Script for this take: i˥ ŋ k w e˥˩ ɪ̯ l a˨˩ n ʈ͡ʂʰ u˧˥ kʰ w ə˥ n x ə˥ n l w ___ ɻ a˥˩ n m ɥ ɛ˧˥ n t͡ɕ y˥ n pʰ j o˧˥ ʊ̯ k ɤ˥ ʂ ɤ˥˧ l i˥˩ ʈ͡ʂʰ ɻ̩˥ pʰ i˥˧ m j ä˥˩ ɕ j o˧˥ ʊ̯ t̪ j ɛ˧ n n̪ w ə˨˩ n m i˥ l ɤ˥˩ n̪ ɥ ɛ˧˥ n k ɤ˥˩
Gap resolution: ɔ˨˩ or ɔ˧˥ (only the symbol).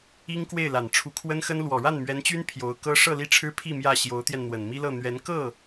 ɔ˨˩